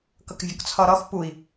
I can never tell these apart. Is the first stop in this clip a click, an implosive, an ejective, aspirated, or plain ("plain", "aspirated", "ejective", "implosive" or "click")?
plain